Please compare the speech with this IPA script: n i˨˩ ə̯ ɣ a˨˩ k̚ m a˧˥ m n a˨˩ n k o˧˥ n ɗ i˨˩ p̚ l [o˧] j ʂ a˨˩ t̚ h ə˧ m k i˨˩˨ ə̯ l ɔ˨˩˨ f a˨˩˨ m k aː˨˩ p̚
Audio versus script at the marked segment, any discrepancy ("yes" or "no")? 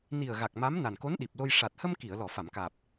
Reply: no